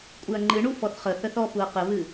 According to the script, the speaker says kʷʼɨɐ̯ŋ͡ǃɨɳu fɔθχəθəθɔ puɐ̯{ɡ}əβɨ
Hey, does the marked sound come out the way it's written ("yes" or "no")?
no